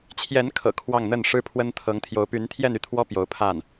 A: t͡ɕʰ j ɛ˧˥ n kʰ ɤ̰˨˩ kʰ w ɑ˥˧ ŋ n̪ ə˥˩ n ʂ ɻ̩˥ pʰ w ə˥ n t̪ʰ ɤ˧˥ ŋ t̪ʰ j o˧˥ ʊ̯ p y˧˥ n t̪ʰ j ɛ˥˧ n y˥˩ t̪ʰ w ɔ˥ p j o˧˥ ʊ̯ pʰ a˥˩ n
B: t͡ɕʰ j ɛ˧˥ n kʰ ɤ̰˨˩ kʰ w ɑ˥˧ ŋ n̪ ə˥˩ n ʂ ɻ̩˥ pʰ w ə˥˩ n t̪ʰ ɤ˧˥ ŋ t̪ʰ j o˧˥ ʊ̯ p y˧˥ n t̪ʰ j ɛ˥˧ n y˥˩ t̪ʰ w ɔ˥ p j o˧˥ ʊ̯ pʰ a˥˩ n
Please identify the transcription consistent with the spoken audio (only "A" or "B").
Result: A